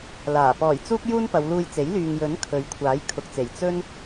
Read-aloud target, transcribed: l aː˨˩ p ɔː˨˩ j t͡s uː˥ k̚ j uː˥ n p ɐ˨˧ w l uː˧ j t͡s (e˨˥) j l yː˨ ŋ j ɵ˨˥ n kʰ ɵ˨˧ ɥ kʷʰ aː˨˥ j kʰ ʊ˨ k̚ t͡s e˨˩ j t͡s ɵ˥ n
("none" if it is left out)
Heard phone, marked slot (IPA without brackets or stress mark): e˨˥